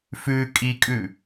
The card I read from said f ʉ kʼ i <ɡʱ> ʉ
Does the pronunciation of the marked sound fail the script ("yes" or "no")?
yes